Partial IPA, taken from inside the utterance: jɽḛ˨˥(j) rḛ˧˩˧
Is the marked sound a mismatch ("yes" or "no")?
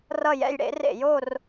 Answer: yes